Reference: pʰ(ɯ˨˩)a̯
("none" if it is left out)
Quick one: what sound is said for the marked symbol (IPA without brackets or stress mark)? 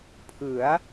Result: ɯ˩˦